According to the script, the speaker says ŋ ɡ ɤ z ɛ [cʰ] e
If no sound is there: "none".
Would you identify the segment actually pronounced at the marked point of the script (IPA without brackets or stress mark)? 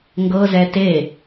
t